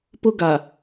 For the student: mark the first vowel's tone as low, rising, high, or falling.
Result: high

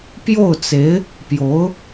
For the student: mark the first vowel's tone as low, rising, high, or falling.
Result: falling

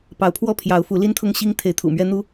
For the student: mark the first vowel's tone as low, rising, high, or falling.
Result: rising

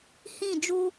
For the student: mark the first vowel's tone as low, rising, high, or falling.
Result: falling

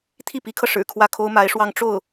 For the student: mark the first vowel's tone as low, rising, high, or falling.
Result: falling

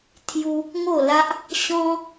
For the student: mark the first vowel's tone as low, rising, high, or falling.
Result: high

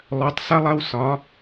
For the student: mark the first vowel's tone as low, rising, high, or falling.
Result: rising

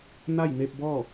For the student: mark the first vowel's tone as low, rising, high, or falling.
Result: falling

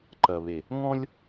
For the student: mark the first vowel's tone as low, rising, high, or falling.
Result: low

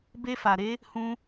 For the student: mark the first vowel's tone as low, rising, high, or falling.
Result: high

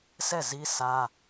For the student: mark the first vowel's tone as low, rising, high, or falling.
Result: falling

